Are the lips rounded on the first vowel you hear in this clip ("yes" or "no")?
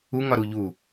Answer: yes